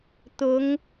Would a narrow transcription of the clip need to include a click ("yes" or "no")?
no